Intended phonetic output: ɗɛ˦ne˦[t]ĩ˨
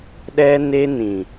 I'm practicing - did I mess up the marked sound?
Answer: yes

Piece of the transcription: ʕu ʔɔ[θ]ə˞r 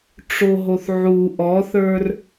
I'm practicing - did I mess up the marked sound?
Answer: no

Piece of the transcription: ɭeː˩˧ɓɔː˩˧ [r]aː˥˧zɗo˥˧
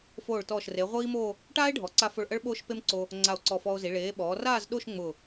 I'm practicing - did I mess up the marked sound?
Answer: no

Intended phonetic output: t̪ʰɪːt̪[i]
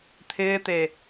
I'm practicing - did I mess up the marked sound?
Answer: yes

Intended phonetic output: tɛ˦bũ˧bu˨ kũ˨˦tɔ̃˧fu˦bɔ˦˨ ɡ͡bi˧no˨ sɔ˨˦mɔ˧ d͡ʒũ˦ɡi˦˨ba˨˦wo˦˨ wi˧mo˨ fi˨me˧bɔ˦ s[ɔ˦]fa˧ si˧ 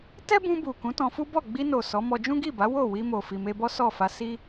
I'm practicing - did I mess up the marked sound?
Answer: yes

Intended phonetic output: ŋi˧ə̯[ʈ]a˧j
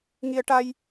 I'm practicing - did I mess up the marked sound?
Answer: no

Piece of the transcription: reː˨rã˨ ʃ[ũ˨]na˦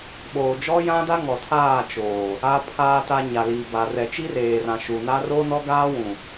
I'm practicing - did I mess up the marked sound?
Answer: yes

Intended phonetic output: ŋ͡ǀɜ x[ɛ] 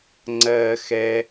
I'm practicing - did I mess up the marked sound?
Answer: no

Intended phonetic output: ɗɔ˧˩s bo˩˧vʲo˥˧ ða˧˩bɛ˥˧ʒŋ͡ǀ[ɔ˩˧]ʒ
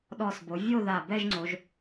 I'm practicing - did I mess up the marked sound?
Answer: yes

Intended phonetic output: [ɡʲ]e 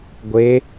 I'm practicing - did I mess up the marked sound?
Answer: yes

